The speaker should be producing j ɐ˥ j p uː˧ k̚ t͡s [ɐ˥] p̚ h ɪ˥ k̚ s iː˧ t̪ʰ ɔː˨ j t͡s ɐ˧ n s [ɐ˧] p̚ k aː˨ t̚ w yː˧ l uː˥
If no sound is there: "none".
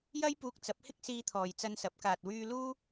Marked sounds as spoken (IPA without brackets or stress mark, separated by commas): ɐ˨˥, ɐ˨˥